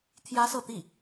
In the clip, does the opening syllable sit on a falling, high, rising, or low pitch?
high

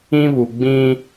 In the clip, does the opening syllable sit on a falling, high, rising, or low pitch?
high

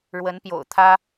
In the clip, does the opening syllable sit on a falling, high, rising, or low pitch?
rising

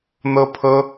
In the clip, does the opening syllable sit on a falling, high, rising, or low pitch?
high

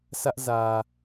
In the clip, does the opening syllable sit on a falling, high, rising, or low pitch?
high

